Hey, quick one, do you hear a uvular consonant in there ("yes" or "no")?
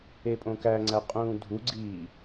yes